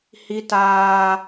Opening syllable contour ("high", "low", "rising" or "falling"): high